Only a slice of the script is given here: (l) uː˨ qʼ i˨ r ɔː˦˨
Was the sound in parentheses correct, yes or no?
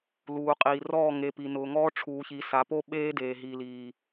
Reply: yes